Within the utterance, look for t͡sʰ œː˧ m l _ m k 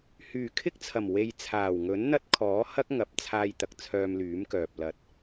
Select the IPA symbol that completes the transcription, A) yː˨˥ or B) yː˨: A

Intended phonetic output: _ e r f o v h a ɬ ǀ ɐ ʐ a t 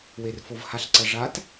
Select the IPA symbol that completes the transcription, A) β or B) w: B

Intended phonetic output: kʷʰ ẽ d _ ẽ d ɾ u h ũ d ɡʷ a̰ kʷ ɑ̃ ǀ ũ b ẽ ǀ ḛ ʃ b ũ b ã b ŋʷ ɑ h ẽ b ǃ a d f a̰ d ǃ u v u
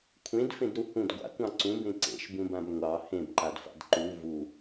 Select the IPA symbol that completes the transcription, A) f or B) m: A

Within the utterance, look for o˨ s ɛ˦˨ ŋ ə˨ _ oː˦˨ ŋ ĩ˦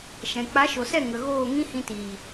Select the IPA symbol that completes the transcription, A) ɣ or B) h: A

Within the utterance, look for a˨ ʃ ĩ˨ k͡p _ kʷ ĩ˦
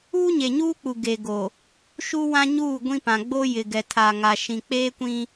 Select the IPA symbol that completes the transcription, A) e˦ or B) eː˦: B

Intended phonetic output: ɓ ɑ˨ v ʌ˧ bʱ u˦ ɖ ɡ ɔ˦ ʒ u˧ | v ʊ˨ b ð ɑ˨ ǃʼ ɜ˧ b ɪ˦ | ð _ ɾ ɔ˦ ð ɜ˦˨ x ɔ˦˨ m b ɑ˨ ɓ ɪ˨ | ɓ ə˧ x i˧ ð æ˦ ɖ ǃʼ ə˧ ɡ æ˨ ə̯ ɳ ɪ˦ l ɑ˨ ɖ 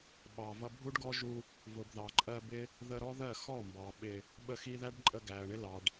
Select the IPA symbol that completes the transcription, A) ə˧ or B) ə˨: A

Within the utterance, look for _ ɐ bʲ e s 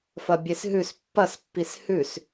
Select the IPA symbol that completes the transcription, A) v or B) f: B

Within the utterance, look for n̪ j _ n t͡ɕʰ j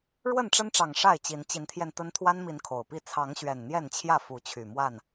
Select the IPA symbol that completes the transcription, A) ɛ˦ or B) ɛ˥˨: B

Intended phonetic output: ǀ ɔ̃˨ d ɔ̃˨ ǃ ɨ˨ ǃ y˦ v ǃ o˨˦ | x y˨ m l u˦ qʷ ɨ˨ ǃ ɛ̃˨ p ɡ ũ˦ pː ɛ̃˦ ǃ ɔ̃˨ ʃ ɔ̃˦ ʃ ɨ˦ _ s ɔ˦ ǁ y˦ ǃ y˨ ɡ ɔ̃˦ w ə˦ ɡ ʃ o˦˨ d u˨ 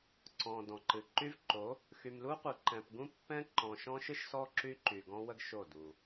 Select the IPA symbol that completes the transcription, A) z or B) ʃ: B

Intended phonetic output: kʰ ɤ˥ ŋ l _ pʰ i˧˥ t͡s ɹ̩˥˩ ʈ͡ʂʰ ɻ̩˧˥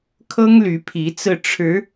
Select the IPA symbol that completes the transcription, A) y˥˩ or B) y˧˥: B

